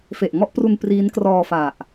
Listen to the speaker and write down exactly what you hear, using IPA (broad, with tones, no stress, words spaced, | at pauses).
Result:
fe˨˩ʔŋɔ˥˩ʔpru˧n priː˦˥nkrɔː˧fa˨˩ʔ